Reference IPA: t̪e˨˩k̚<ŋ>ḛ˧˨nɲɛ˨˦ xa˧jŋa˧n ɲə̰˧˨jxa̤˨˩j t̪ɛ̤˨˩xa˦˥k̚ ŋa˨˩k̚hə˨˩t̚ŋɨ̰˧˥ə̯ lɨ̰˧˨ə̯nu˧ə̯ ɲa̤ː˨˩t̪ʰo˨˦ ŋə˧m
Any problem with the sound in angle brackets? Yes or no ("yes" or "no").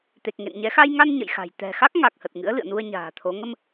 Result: no